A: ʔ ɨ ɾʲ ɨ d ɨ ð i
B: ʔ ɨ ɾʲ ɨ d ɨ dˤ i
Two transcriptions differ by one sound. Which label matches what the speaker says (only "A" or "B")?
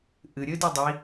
B